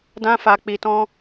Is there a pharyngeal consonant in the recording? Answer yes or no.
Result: no